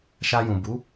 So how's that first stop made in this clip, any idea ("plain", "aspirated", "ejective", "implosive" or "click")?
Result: plain